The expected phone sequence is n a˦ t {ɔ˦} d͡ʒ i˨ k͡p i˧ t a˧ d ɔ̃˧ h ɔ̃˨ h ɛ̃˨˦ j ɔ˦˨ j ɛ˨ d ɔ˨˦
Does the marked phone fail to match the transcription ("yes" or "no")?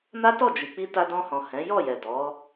yes